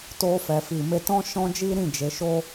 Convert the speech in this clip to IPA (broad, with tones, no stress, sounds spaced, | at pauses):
t o˧ f ɛ˨ f i˨ m e˧ t ɔ̃˦ ʃ ɔ̃˦ d͡ʒ i˦ ɾ ĩ˦˨ d͡ʒ e˨˦ ʃ o˦